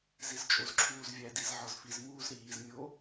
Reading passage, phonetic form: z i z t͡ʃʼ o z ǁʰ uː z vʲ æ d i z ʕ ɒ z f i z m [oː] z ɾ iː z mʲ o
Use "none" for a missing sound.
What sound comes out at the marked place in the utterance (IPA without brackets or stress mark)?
uː